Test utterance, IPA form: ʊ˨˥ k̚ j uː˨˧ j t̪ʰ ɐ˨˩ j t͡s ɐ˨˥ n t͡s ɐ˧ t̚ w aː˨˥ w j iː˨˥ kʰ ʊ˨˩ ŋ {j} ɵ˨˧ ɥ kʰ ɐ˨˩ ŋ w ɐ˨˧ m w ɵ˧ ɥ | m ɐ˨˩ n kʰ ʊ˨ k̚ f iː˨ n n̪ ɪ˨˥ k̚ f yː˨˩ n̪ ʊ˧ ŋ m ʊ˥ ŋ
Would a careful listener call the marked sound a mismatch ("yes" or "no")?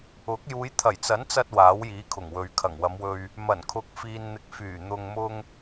yes